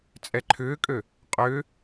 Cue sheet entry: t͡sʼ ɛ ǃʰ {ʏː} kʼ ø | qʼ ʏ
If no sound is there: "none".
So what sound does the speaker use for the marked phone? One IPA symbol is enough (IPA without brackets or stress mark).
ʏː